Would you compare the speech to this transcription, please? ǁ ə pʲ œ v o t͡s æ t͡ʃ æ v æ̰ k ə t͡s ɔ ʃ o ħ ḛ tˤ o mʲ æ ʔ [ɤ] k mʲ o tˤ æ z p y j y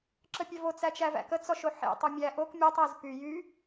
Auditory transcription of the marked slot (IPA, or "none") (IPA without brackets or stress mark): o